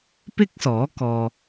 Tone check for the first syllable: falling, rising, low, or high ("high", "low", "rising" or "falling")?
high